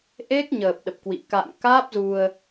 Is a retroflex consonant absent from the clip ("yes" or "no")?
yes